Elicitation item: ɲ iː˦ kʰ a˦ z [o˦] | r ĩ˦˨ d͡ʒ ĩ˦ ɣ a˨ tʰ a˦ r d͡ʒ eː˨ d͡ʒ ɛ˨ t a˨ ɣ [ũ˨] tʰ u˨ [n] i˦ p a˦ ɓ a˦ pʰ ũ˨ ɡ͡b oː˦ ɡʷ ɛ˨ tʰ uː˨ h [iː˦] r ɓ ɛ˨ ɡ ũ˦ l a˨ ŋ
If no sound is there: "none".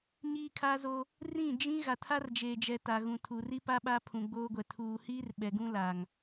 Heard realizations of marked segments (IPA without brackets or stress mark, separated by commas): o˦, ũ˨, r, iː˦